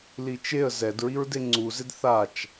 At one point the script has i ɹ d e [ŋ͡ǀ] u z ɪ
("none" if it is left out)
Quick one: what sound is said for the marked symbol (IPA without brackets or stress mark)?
ŋ͡ǀ